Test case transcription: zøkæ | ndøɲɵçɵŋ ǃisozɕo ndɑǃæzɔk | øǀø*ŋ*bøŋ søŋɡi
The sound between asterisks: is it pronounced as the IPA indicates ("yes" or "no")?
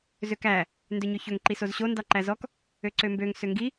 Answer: no